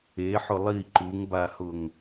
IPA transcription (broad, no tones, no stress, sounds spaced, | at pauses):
e ħ ʊ lˠ i ǃ u ŋ b a h ʊ ŋ